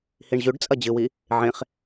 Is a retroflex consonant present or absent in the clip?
present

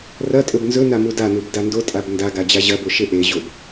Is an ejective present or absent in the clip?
present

